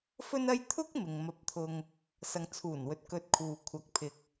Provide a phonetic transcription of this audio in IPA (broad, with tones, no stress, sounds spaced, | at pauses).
f ɵ˥ n ɐ˥ j t̪ʰ ʊ˥ k̚ m ɪ˨ ŋ m ɐ˧ p̚ t̪ʰ ʊ˧ ŋ | s ɐ˨ ŋ t͡sʰ uː˨˩ n w ɵ˨˥ t̚ k ɵ˧ t̚ kʰ uː˨ kʷʰ ɐ˨ k̚ pʰ ɪ˨ k̚